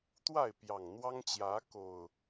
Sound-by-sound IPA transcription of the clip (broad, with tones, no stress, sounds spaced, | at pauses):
t̪ w a˥˨ ɪ̯ p j ɑ˨˩ ŋ n̪ w ɑ˦ ŋ t͡ɕ j ä˨˦ k o˨˩ ʊ̯